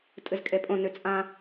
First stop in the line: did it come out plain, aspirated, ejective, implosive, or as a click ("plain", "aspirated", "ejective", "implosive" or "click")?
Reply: ejective